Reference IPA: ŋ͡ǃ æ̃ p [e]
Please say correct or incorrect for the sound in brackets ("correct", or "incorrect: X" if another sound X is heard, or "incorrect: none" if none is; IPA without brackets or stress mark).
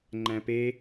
correct